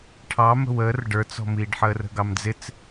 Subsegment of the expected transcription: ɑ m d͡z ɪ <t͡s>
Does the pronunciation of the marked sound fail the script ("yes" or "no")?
no